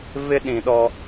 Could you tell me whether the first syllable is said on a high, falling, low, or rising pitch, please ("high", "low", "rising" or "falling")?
high